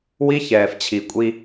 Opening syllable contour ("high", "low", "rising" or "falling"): high